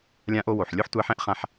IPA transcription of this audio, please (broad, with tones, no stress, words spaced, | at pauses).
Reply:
lʲã˧ʔo˧ wo˩ħlʲo˥ħ tʷæ˧ħɛ̃˥ʔχã˧ħ